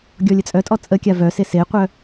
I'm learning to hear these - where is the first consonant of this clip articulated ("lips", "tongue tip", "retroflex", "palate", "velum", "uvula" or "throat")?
velum